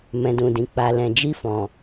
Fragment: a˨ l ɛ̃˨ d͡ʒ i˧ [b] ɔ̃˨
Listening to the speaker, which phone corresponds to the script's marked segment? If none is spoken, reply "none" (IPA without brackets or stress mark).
f